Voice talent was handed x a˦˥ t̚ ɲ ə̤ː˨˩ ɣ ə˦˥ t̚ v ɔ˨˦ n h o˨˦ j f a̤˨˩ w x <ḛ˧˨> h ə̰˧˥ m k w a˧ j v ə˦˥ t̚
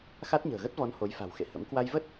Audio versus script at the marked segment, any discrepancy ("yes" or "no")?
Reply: no